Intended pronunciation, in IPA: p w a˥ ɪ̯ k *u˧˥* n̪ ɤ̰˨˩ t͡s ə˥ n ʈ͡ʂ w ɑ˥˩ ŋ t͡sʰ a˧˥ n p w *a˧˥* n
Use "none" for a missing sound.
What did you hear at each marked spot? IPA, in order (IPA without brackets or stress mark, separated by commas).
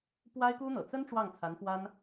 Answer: u˥, a˥